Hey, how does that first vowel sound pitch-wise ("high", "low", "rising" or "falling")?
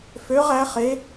rising